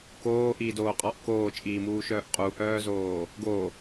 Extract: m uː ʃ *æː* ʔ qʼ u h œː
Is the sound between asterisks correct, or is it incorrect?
incorrect